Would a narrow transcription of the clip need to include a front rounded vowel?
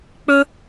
no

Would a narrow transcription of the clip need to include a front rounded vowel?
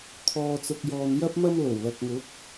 no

